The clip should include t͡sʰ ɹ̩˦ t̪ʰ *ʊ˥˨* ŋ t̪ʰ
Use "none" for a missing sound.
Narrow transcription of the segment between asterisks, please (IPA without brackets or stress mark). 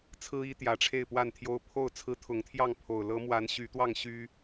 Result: ʊ˨˦